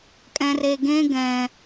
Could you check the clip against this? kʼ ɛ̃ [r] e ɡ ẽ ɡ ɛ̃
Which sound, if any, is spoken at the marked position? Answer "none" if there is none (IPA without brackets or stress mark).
r